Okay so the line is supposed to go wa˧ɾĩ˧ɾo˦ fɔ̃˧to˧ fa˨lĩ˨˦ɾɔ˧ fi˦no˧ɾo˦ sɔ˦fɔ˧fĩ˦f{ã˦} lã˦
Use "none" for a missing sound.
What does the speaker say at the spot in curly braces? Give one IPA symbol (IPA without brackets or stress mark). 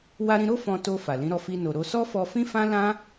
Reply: ã˦